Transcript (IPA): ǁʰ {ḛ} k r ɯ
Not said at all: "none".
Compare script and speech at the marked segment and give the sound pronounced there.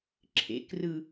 ḛ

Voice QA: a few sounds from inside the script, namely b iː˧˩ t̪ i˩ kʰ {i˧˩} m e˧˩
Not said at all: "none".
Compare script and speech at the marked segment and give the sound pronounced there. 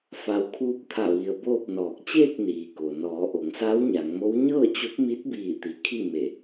i˥˨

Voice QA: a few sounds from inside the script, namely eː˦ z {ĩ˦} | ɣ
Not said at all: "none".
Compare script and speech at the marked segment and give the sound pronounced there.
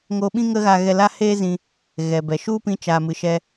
ĩ˧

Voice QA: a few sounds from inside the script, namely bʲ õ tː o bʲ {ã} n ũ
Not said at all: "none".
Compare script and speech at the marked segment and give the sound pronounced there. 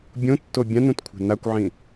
ã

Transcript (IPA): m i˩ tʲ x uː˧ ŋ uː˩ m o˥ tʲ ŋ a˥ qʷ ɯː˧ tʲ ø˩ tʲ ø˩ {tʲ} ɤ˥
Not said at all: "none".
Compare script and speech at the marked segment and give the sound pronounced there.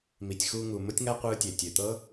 t̪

